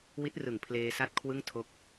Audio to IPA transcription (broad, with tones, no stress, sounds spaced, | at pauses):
w i˦˥ t̚ r ɯ˨˩ ŋ pʰ l eː˧ s a˦˥ t̚ kʰ w ɯ˥˩ ŋ tʰ o˦˥ k̚